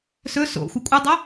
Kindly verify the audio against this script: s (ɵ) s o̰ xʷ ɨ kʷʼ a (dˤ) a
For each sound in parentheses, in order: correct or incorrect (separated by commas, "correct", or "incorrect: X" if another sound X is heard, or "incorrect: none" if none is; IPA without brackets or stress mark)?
correct, correct